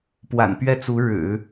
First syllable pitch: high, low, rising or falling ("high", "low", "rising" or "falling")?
low